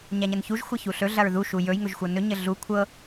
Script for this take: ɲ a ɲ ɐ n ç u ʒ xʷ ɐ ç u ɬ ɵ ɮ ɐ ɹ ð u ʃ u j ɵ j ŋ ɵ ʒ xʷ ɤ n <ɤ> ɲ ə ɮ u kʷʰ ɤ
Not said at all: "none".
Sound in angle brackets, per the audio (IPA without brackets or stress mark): ɵ